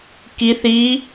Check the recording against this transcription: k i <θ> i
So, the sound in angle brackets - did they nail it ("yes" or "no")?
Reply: yes